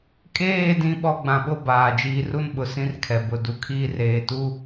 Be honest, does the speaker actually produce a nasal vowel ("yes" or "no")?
yes